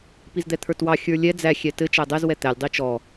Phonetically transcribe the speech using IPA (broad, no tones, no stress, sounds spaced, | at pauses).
p i z d̪ ɛ t̪ʰ ə˞ t w ɑ xʲ ə˞ lʲ ɛ d͡z æ xʲ ɛ t ɘ t͡ʃ æ dˤ ɛ z w ɛ t̪ æ lʲ dˤ i t͡ʃ ɔ